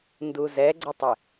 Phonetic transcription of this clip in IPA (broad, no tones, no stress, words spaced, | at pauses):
nduzɛɡ͡ǀətˤɪ